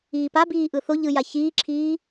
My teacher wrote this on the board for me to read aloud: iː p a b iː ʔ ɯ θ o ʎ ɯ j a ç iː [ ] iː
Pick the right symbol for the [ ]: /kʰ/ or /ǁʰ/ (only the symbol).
ǁʰ